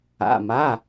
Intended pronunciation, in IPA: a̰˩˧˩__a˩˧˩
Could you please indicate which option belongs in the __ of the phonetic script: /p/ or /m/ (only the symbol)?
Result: m